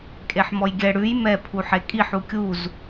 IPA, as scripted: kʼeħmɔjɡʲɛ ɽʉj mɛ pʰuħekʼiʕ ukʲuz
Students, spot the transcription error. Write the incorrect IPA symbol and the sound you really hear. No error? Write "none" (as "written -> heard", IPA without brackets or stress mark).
ʕ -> ħ